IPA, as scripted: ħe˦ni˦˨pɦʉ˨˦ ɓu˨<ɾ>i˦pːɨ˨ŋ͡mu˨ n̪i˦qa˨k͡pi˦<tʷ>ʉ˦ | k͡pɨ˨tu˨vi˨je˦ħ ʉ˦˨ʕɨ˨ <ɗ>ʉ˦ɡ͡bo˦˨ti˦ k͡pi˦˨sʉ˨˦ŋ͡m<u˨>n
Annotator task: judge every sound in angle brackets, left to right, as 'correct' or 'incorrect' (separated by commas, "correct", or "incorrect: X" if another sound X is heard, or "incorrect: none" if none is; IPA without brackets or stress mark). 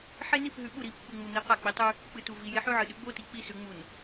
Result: correct, incorrect: tˤ, correct, correct